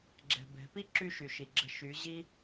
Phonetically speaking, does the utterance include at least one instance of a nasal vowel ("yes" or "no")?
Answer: no